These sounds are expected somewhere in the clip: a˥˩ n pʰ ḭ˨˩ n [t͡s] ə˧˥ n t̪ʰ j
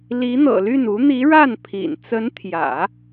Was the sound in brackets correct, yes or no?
yes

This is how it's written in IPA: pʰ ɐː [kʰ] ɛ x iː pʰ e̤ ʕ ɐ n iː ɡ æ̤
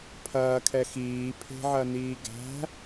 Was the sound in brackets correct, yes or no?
yes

